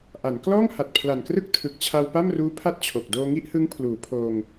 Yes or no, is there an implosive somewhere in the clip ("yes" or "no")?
no